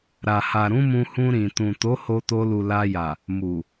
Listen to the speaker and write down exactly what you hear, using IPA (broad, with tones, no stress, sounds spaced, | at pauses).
ɾ a˨ h a˨ ɾ ũ˨˦ m ũ˧ h ũ˧ ɾ ĩ˨ t ũ˨ t o˨˦ h o˧ t o˧ l u˨ l a˧ j a˨ | m u˨